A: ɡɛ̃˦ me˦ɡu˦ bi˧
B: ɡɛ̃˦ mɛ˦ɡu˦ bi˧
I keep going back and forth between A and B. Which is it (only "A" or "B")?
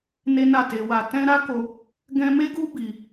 A